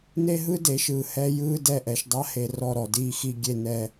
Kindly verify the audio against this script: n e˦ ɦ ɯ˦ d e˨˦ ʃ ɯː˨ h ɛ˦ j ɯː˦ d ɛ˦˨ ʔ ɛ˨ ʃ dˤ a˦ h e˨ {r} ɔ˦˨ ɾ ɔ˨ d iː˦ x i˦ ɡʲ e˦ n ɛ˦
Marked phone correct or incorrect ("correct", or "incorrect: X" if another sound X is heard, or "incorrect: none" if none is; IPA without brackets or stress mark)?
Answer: correct